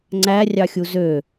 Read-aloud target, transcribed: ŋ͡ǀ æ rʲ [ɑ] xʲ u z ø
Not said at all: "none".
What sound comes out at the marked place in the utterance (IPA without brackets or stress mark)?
ɑ